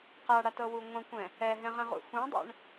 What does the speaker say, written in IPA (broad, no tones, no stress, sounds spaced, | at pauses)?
q a ɽ a t ɤ w u ŋʷ ɛ̃ kʷ ɛ̃ | ɛ ɦ ɛ̃ ʁ ɛ̃ ʁ ṵ x ũ dˤ ɛ̰ ɳ